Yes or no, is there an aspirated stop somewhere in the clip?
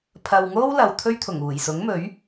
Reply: yes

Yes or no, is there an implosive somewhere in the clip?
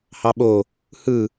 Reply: yes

